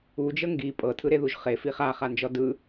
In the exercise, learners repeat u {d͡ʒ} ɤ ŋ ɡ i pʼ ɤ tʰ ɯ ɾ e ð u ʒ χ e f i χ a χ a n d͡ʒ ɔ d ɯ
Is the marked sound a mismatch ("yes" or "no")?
no